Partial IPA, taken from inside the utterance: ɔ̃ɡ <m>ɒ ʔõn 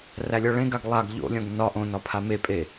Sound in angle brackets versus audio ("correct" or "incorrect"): incorrect